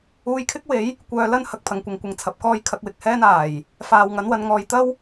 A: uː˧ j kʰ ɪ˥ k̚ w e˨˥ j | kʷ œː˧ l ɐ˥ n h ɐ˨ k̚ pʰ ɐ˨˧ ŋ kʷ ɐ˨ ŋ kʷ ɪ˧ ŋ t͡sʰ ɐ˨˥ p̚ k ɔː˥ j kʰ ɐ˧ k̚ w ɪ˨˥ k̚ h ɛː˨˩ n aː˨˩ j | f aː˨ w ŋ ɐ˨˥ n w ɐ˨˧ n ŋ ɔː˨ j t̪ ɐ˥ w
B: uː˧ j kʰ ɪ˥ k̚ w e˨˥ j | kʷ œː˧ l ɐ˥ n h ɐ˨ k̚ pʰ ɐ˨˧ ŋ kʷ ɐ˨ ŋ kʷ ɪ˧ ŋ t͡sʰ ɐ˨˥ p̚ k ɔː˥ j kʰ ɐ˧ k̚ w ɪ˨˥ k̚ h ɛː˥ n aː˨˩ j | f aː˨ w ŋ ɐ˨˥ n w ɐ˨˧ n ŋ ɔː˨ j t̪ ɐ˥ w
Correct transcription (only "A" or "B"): B